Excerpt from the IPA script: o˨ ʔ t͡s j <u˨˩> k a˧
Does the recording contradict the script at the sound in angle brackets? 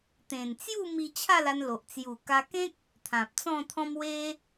no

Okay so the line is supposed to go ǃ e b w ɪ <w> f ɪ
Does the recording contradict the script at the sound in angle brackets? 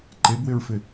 yes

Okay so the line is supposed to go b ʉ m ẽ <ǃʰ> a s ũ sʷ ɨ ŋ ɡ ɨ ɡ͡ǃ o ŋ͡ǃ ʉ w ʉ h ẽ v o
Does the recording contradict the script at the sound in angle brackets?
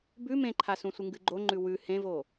no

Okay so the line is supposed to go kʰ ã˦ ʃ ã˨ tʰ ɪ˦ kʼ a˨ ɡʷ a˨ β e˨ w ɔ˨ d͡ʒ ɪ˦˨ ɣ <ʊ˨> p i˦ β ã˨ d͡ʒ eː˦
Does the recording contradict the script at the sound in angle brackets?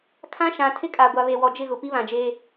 no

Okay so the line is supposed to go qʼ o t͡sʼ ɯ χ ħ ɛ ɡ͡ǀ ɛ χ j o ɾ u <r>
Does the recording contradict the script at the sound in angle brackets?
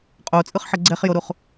yes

